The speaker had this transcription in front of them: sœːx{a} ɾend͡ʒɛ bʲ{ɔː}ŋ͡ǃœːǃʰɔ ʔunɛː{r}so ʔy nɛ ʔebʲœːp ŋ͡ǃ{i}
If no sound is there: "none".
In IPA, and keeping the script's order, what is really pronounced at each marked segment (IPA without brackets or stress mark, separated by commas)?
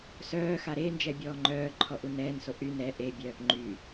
a, ɔː, n, y